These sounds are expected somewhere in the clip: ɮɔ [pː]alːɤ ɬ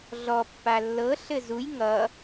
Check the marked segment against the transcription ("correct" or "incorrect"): correct